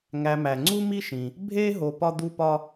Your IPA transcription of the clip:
ŋæ˨mæ˩ŋ͡ǀu˥ mi˥ʃĩ˩ | bʱe˥ ɦo˨pɒ˦d̪u˦pɒ˦

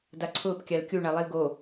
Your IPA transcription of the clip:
daǀʰʊːp kʲalkʲu ɳalˠilɡo

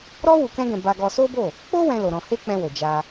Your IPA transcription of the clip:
ɾɔ˦ wu˧kɛ̃˦ɡɛ̃˧ ba˧ɡɔ˧ so˦bo˦˨ | k͡po˦ wɛ̃˦lo˧ɾɔ̃˧ he˦k͡pɛ̃˧wo˨ d͡ʒa˧

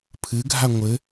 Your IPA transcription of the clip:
pʰɨɡʱa ŋʷɘ

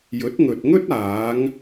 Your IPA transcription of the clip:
jɵ˨˥t̚ŋɵ˨t̚ŋɵ˥t̚aː˨˧ŋ

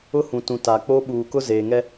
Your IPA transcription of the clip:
ʊ˦hũ˨tũ˨ ta˨k͡po˦ ɓuː˨kʊ˦ zeː˨ŋɛ˦

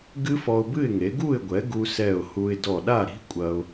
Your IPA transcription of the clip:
ɡɨ˦˥fɔ˧ʊ̯bɨ˥˩ɪ̯ŋe˩˥ ɡu˥˩ɪ̯ɡʷɛ˩˥ ɡu˧sɛ˧˩ʊ̯hu˧ɪ̯ dɔ˧˩ɗa˥˩ɾi̤˦˥ kʷʼɐ˧ʊ̯

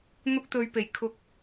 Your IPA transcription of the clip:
n̪ʊ˧k̚t̪ɵ˨ɥpe˨˩j kʰʊ˨k̚

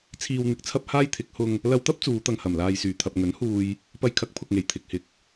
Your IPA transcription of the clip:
t͡sʰiː˨wn̪ɪ˨˥k̚t͡sʰɐ˧p̚ haː˥jt̪ʰɪ˨˥k̚ hʊ˧ŋ | lɐ˧wt̪ɐ˥p̚ t͡suː˨˧t̪ɐ˧ŋhɐ˨˩m laː˨jsyː˨˩t̪ʰɐ˨p̚ ŋɵ˨˥nhuː˧j | pɐ˧jkʰɐ˨˥k̚pʰʊ˨k̚ŋe˨˩j t̪ʰɪ˨k̚hɪ˨˥k̚

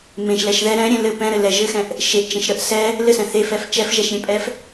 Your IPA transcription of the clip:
mẽʃlɛʃ ðɛ ɾɛ̃ɾʲẽ lɘ pɛ̃ɾɘ lɛ ʒɘxɛ̃ʔ | ʃeʔt͡ʃẽʃ ɾəʔ sɛ | lɘsɛ̃ θefɛf t͡ʃɛfʒɛʃɾʲẽpʼɛf

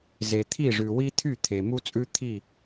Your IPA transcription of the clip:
ze˨t̪ʰi˦˨ʐʉ˨ wi˦t̪ʰy˦˨ t̪ʰe˨mu˦t͡sʼʉ˦ t̪ʰi˦˨

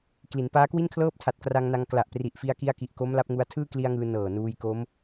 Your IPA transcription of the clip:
kli˩˦npaː˦˥kwi˥˩nkʰlɤː˥˩p̚ tʰa˨˩t̚kra˧ŋna˧ŋ kla˨˩ʔpri˨˩ʔfi˧a̯ki˧a̯ ki˨˩ʔko˦˥m la˦˥p̚ŋu˧a̯ tʰɯː˥˩kli˧a̯ŋɯː˧ nɤː˨˩nuː˧j ko˦˥m

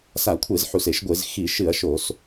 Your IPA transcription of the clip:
sa˧˩˧ kʷʰe˧˩˧zħu˨˩se˧˩˧ʃ ɡʷe˧˩˧z xi˧˩˧ʃɨ˧˩˧ɐ̯ ʃo˧˩˧s

